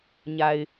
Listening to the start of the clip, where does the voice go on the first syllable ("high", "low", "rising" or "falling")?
low